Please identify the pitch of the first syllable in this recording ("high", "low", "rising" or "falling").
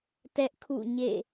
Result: high